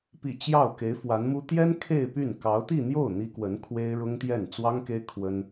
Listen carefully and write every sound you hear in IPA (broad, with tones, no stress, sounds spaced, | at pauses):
p ḭ˨˩ t͡ɕ j ɑ˥˩ ʊ̯ k e˧˥ ɪ̯ f w a˧˥ n m u˥ t̪ j ɛ˥ n kʰ e˥˧ ɪ̯ p y˥˩ n k ɑ˧˥ ʊ̯ t̪ i˥˧ n̪ j o˥˩ ʊ̯ n̪ i˥ k w ə˧˥ n kʰ w e˥ ɪ̯ ɻ ʊ˥ ŋ t̪ j ɛ˥˩ n t͡s w ɑ˥ ŋ k e˥ ɪ̯ kʰ w ə˥ n